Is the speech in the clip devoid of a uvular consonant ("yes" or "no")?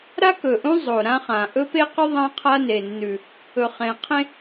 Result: no